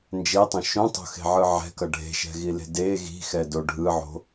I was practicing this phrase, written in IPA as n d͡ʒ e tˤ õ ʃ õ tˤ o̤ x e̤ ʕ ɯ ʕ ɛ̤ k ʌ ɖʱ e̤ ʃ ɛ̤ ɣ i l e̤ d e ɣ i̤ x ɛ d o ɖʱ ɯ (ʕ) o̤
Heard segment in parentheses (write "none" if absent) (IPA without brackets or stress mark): ʕ